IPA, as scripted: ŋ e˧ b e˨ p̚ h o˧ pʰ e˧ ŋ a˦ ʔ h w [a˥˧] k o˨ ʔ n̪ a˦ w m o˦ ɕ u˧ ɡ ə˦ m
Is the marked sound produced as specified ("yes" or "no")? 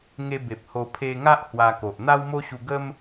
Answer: no